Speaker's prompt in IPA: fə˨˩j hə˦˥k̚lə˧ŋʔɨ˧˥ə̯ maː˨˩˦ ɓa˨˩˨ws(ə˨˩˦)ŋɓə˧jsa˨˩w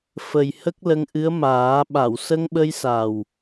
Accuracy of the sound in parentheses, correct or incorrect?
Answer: incorrect